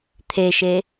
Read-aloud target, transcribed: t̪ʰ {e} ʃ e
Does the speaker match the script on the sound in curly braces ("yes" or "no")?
yes